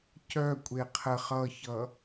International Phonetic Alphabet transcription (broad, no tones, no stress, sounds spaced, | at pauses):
c œ kʷʼ e qʰ ə χ ʌ ç ʌ